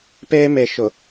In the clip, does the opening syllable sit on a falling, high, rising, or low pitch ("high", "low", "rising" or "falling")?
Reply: high